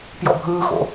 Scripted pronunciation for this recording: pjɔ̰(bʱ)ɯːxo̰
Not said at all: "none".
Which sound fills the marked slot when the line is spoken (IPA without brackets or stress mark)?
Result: bʱ